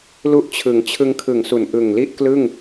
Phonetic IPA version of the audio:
l u˥˩ ʔ t͡ɕʰ ɯ˩˦ ŋ t͡ɕʰ ɯ˧ ŋ kʰ ɯ˨˩ ŋ s u˨˩ n ʔ ɯ˨˩ ŋ l i˥˩ ʔ k l ɯ˥˩ ŋ

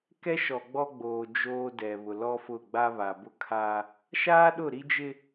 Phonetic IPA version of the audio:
k ɛ˦ ʃ ɔ˨ ɡ͡b ɔ˦ ɡ͡b oː˨ d͡ʒ oː˦ d ɛ˨ β ʊ˨ l ɔ˦ f ʊ˦˨ ɡ͡b a˦ β a˨ b ʊ˦ kʰ aː˦ | ʃ aː˦ ɗ ʊ˦˨ ɾ i˦ d͡ʒ ɪ˦

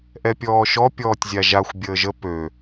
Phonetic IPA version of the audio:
ʔ ɛ pʲ ɔː ʃ ɔ pʲ ɔː tʲ zʲ a ʒ a xʷ bʲ əː ʒ ə p ø

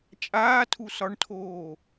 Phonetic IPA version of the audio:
t͡ʃʼ aː tʰ u s ɒ ɳ tʰ oː

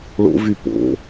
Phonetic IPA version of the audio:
ɭ o̰ v y p o̰

